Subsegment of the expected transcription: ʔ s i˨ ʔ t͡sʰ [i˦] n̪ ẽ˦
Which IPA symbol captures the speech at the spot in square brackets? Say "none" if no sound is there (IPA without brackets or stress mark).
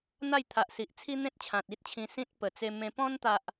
i˦